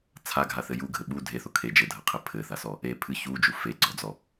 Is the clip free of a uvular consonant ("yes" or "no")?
no